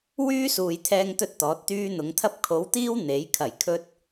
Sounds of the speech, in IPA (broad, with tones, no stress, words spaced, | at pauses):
wyː˥suː˨j t̪ʰɛː˥ŋt̪ɵ˥t̚t̪ɔː˨˥t̚t̪yː˥ n̪ʊ˨˧ŋt̪ʰɐ˥p̚ kʰo˨˥wt̪iː˥w n̪e˨˥j kʰɐ˨˩jkʰɵ˧t̚